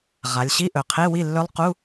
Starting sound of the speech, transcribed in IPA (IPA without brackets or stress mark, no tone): ʁ